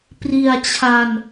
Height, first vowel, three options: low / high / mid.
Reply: high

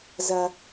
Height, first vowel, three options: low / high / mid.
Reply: low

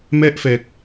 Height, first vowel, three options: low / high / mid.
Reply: mid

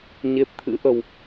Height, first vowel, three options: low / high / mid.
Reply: mid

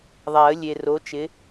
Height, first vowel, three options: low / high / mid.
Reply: low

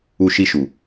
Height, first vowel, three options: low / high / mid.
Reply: high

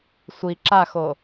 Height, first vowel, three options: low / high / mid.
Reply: high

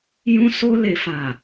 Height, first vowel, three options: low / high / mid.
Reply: high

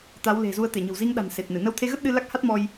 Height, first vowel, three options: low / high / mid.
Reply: low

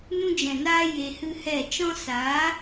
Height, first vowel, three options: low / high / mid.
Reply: high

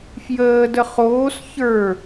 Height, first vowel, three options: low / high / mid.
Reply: mid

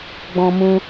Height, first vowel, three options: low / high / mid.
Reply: mid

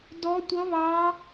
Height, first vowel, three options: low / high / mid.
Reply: mid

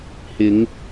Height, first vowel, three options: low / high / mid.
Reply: high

